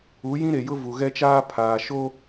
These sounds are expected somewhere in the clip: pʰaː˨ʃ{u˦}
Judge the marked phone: incorrect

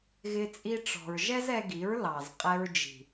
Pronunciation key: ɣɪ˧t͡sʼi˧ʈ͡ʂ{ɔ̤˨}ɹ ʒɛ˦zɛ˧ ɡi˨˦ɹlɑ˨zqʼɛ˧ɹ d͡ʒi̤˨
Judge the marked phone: correct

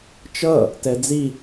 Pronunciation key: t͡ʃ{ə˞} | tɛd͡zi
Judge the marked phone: incorrect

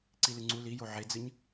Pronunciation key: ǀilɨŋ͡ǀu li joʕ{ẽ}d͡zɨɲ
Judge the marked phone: incorrect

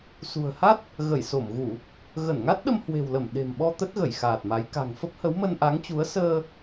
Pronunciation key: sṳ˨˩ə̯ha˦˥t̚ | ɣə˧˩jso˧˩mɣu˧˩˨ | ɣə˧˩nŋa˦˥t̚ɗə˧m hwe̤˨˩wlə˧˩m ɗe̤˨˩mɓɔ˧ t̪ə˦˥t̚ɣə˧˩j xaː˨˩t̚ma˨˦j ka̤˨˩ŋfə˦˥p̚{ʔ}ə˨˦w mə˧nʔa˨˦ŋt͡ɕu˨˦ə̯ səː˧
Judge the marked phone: incorrect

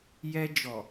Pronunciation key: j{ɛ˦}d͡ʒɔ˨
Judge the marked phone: correct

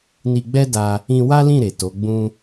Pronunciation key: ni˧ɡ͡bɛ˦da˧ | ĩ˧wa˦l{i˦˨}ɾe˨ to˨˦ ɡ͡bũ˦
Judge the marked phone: incorrect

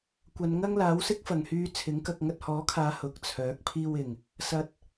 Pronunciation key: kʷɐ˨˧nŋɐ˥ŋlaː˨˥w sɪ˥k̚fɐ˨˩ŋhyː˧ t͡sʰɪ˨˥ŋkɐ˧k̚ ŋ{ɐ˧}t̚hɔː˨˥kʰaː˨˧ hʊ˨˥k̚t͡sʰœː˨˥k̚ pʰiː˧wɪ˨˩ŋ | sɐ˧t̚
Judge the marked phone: correct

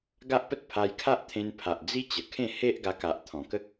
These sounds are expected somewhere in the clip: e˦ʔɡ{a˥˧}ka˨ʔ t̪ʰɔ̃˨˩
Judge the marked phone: incorrect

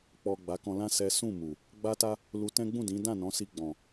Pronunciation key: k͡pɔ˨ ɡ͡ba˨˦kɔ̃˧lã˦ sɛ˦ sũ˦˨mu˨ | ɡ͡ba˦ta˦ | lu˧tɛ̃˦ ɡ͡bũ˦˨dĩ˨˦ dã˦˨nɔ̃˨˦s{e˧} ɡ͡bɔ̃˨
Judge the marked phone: incorrect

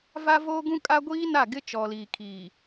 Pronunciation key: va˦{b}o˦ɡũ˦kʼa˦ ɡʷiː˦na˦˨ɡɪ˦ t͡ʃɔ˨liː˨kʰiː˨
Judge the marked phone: incorrect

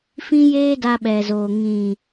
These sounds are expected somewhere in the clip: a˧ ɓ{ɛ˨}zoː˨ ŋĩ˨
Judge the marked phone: correct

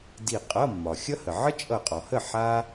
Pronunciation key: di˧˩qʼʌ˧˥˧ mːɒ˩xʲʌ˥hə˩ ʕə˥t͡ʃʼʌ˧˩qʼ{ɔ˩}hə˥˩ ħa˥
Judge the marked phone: correct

